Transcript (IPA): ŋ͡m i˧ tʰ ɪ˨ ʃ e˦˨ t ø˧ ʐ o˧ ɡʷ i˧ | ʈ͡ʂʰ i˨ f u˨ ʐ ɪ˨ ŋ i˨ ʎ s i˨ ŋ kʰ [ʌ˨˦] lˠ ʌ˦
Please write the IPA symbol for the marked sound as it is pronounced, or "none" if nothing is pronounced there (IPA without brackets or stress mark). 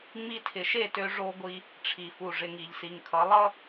ʌ˨˦